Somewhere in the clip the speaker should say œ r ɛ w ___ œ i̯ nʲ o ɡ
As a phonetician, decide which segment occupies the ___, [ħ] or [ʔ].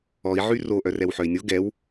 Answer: ħ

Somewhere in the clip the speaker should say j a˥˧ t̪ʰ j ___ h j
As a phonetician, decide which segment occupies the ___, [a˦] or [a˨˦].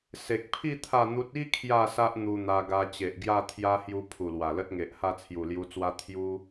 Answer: a˦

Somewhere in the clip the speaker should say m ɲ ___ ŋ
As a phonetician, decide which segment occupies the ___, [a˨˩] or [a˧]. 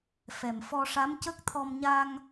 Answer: a˧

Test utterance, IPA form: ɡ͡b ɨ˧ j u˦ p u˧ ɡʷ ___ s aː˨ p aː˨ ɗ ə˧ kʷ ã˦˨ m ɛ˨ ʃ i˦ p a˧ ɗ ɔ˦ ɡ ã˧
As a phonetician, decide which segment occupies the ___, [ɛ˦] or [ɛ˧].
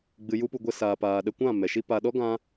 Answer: ɛ˧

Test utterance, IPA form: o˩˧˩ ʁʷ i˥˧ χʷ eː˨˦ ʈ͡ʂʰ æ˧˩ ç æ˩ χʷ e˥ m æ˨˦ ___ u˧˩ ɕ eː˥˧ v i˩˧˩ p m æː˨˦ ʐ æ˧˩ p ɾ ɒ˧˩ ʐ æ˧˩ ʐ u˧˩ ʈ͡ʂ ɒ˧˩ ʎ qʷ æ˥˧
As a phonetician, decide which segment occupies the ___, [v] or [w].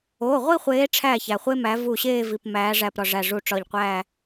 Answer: v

